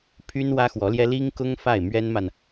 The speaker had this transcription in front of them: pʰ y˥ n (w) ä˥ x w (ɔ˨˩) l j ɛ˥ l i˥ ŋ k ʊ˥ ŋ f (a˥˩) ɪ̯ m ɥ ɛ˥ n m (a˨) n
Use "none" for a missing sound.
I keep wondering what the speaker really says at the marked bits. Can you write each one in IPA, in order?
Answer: w, ɔ˧˥, a˥˩, a˨

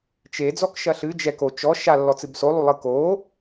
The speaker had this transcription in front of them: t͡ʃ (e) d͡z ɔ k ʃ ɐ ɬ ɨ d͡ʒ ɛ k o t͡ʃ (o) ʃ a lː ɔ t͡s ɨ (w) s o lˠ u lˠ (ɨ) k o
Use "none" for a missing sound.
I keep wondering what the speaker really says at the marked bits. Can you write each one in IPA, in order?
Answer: e, ɔ, b, ɨ

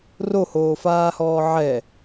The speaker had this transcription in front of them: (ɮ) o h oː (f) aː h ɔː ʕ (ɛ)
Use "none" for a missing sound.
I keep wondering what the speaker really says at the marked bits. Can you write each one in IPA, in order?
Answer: r, f, ɛ

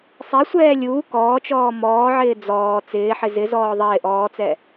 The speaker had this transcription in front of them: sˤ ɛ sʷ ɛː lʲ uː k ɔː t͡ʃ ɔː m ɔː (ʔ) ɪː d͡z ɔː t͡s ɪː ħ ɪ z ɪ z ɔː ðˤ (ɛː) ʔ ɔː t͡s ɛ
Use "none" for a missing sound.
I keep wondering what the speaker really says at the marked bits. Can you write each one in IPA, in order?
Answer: ʕ, ɪː

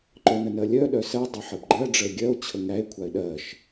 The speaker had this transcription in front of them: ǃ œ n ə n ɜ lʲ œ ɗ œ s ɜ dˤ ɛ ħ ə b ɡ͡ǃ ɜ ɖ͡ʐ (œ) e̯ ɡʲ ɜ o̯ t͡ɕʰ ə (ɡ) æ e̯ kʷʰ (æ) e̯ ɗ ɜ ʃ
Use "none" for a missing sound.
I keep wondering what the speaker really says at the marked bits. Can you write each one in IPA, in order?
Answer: ə, ŋ, a

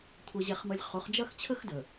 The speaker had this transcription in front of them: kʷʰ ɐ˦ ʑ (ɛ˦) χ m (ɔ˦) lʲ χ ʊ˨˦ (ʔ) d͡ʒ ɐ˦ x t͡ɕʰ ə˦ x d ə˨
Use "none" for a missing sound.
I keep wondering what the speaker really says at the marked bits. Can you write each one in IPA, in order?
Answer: ɛ˦, ə˦, χ

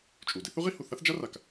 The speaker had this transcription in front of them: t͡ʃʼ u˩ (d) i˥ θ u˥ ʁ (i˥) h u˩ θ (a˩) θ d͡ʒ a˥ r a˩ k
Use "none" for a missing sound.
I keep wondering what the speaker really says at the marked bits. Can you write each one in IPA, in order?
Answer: d, i˥, a˥

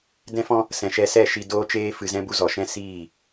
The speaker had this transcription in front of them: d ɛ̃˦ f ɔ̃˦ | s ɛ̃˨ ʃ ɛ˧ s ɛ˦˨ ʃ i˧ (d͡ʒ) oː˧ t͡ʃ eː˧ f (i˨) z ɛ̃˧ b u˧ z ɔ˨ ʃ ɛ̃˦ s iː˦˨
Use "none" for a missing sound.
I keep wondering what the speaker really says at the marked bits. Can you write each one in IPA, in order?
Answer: d, ɨ˨

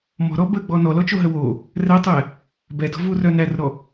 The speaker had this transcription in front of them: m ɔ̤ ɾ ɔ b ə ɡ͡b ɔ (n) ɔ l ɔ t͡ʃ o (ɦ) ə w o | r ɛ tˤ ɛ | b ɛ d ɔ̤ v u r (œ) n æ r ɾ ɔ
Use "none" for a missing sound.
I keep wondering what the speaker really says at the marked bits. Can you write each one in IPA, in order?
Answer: n, ɦ, œ

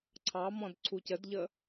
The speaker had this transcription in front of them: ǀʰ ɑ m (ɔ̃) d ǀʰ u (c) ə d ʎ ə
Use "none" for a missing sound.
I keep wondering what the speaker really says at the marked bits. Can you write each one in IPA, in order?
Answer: ɔ̃, c

